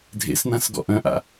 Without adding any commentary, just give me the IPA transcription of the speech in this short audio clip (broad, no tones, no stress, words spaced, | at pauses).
dʱḛsnãsɡɔ̰ ʔœ̃ʔa̰